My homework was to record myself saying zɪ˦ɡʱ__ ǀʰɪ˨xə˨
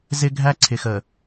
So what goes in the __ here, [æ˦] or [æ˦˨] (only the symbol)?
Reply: æ˦